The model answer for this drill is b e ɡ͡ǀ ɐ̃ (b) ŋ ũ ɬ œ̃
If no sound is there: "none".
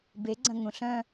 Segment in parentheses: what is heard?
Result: none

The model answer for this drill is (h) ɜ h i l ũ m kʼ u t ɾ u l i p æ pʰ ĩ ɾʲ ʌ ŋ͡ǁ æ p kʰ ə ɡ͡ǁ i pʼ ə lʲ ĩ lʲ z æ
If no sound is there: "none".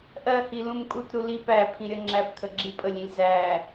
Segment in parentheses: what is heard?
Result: ʔ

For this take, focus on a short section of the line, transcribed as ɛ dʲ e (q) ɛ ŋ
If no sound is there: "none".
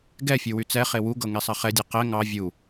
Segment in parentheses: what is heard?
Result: q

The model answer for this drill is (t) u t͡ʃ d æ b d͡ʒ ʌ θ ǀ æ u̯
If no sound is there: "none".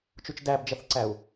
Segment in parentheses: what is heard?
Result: t͡ʃ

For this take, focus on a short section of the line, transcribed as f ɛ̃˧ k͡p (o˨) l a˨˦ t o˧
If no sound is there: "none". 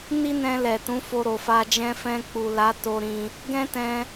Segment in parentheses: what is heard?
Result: u˨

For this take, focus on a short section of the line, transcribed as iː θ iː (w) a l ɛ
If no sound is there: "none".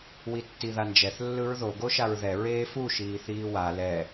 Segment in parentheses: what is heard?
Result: w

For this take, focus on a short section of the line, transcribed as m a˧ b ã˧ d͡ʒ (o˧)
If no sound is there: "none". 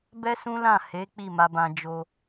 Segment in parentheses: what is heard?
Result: o˧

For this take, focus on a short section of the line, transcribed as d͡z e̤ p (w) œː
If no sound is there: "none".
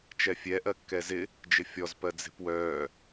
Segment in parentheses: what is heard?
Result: w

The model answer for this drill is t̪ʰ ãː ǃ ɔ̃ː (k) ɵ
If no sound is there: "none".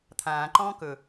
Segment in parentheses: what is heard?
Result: k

